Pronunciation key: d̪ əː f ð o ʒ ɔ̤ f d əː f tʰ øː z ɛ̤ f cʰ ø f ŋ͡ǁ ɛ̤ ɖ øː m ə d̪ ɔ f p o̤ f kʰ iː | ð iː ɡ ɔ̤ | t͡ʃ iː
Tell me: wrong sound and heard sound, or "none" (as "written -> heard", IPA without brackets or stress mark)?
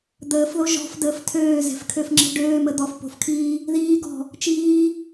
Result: cʰ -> kʰ